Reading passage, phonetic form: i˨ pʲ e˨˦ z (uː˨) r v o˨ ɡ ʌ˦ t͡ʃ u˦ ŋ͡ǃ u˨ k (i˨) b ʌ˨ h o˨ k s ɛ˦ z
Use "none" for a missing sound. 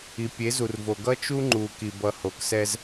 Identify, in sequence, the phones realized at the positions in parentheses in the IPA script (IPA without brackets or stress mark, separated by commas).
u˨, i˨